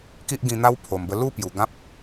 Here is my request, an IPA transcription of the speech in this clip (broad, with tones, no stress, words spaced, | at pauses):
ki˦ʔɡĩ˧n̪a˦w pʰo˨˩mbə˧ lu˥˧pju˨˩ ɡã˦p̚